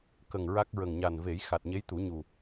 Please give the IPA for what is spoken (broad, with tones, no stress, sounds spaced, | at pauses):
k ə˨˩ ŋ ɹ a˦˥ k̚ ɹ ə˨˩ ŋ ɲ a˨˩ n v e˨˩˦ j x a˨˩ t̚ ɲ e˧˥ j t̪ u˨˩˦ ɲ u˨˩